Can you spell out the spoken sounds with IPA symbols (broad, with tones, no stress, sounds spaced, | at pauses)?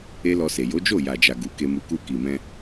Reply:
e˦ l ɔ˧ s e˨ j o˨˦ d͡ʒ o˦˨ j a˨ d͡ʒ a˨ ɡ u˨˦ k e˧ m u˧ k u˧ k i˨ m ɛ̃˧